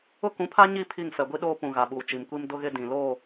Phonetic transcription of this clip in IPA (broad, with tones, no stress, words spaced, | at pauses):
ʊ˦kũ˨˦pʰa˦ɲi˦˨ pʰi˦˨ŋ fɛ˨ɡʷi˦ ɗoː˦pũ˨ ɣa˨ɓuː˨t͡ʃi˨mkʷi˦m dʊ˦ɣɪ˦ dĩ˨loː˦˨